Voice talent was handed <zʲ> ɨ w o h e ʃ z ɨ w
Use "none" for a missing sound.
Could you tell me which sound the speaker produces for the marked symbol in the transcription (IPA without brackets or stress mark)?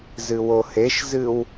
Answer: z